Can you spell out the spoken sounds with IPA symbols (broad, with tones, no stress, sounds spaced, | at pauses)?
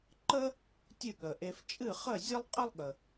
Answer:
ǃ ə˥ | tʲ ɨ˥˩ ɠ ə˩ ʔ e˧ f t͡ʃʼ ɨ˥˩ χ ə˥˩ zʲ ɐ˥ lˠ qʼ ə˥ lˠ ɠ ə˩